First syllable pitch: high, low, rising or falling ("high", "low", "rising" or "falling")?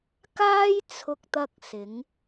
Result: high